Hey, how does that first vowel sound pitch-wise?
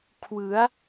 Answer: rising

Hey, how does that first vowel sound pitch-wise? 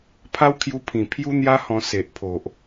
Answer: high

